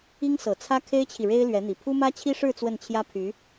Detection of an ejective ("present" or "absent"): absent